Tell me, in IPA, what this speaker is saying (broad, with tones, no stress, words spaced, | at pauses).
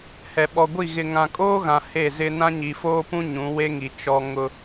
hɛ˨ɓɔ˨ɡʷi˦˨ ɣɪ˨ŋã˨kʼoː˦ɣã˨ he˦˨ zɪ˦ nã˦ɲi˨foː˦pũ˦ ɲũ˨˦we˦ŋi˨ t͡ʃɔ˦ ŋʊ˦